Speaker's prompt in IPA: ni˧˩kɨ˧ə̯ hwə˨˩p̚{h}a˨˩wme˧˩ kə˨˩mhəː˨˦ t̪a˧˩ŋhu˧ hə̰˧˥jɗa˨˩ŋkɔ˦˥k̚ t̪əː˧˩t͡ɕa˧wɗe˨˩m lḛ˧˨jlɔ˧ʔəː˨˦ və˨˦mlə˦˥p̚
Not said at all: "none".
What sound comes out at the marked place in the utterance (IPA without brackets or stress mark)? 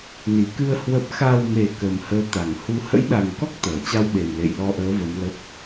x